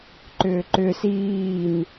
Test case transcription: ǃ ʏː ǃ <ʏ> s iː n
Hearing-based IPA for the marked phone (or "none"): ʏ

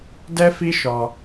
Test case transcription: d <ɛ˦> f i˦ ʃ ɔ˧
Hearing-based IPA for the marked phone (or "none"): ɛ˦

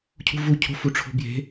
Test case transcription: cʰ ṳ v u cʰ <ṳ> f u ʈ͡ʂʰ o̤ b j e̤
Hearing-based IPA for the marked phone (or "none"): o̤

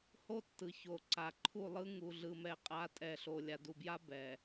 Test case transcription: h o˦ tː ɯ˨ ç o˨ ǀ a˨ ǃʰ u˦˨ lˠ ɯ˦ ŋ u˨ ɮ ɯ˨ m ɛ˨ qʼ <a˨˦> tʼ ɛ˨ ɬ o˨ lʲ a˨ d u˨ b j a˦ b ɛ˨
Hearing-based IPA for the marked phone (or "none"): a˨˦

